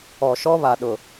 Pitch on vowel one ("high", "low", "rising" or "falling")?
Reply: low